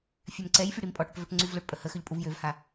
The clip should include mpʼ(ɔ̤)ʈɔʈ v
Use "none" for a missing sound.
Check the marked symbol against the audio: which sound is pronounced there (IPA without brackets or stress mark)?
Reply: ɔ